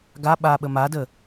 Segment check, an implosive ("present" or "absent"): present